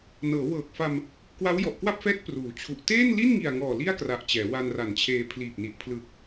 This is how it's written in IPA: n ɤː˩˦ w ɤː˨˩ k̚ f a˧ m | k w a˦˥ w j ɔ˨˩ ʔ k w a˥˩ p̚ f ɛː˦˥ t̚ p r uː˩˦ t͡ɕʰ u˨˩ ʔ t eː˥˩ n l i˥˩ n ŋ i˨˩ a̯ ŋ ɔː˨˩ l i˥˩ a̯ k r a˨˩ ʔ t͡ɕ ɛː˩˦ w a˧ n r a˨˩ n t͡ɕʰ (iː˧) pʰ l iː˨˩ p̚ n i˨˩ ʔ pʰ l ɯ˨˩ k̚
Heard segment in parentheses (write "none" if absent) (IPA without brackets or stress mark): eː˧